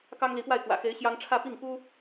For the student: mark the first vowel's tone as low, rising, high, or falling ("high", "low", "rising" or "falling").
high